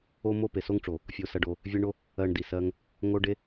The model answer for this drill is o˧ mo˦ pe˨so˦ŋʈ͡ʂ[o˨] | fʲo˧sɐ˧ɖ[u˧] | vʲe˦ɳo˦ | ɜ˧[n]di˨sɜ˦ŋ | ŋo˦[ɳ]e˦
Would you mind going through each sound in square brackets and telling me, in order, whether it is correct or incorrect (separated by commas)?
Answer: correct, incorrect, incorrect, incorrect